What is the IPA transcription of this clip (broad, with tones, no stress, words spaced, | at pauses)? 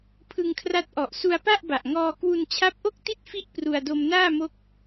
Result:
pʰɯ˧ŋkʰra˦˥t̚ʔɔ˨˩ʔ su˧a̯pa˥˩ʔba˨˩ʔŋɔː˧ kwu˧nt͡ɕʰa˦˥p̚ʔo˥˩k̚ ti˥˩t̚fi˦˥ʔ pru˧a̯ do˧mnaː˥˩mo˦˥k̚